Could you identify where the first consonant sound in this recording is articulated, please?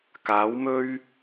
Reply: velar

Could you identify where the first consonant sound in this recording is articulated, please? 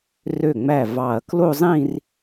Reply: alveolar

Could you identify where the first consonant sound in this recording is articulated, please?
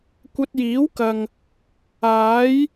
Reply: velar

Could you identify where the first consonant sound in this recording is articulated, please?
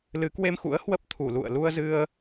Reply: alveolar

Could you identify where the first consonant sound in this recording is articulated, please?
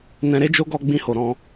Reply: alveolar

